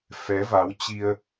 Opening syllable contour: rising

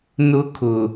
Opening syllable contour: high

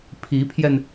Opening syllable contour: rising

